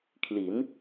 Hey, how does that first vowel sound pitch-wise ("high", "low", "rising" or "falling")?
rising